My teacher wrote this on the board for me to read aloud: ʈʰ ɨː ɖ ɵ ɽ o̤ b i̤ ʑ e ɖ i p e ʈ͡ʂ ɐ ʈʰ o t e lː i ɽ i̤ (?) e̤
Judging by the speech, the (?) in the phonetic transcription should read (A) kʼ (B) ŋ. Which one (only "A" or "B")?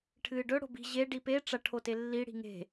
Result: B